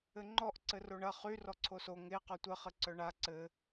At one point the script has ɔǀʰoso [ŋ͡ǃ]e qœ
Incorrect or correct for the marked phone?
incorrect: ŋ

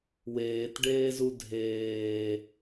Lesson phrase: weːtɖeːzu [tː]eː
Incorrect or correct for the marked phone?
incorrect: dʱ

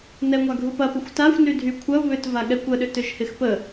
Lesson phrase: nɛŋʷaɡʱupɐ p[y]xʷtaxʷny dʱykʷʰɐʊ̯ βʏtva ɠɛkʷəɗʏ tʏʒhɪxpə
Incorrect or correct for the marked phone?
incorrect: ɪ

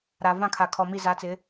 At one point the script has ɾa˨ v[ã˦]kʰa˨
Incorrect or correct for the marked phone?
incorrect: ã˦˨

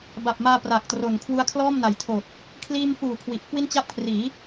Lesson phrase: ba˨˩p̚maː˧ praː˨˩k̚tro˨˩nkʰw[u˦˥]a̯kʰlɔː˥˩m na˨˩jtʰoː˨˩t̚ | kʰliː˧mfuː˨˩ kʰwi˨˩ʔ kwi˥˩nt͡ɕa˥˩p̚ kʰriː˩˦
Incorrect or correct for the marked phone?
correct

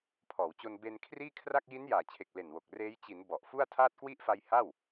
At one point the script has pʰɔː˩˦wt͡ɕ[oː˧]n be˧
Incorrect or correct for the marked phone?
incorrect: o˧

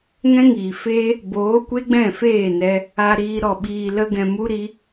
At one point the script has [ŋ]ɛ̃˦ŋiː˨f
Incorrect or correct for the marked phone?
correct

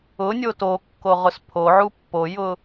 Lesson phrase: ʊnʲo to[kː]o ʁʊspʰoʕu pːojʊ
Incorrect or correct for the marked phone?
correct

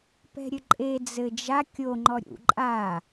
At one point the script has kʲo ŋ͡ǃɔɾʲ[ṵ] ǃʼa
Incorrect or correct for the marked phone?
correct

